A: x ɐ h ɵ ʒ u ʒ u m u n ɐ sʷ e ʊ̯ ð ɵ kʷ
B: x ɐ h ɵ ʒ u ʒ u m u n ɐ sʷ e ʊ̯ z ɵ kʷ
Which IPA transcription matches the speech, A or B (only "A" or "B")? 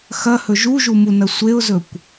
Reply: B